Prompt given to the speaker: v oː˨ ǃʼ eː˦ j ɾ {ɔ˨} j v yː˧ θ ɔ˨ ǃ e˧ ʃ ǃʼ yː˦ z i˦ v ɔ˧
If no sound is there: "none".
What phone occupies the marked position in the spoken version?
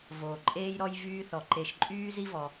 ɔ˦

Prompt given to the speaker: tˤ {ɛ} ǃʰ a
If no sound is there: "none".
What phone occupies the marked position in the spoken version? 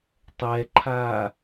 ɛ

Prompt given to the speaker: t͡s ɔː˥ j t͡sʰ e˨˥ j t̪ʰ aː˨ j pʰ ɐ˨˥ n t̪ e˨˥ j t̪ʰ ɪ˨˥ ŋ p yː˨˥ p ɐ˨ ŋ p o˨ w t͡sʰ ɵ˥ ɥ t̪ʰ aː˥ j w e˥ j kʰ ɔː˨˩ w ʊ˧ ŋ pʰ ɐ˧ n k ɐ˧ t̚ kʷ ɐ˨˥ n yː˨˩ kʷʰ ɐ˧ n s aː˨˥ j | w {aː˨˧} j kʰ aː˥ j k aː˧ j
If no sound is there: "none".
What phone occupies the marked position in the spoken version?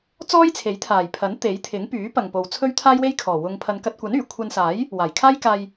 aː˨˩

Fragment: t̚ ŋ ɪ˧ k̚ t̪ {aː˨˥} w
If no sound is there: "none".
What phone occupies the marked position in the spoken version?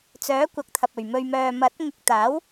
aː˨˥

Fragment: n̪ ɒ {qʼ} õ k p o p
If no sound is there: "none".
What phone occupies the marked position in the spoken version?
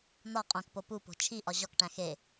qʼ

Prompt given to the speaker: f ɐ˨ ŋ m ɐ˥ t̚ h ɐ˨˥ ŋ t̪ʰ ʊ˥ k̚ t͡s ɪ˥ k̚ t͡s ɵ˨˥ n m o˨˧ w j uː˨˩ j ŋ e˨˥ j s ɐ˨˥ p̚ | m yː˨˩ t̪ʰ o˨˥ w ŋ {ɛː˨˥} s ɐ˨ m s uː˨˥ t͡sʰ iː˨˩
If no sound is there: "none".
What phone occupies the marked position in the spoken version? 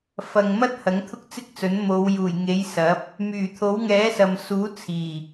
ɛː˨˥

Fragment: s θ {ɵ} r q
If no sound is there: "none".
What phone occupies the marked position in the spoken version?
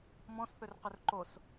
ɵ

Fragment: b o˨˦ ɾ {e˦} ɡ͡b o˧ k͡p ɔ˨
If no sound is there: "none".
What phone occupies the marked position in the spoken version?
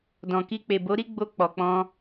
i˦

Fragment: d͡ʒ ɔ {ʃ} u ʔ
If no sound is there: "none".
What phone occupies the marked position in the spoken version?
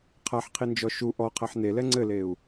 ʃ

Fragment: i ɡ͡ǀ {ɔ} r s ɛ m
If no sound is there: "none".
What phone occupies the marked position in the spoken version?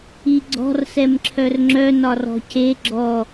ɔ̤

